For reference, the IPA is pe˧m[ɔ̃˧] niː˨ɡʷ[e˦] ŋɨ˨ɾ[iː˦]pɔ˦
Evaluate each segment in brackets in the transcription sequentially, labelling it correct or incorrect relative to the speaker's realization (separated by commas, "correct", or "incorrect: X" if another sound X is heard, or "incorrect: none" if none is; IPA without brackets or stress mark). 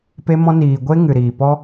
correct, correct, incorrect: iː˨